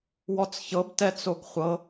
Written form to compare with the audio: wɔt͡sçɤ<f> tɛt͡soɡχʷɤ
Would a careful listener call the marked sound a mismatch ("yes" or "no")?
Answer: yes